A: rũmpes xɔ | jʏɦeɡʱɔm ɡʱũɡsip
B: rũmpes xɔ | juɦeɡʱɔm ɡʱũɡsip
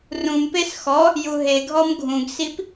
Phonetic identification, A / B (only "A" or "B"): B